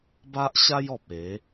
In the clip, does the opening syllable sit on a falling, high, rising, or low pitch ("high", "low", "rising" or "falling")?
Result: high